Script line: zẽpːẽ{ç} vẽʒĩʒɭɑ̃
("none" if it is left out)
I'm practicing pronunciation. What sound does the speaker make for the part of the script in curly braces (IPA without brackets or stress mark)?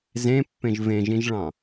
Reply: ʒ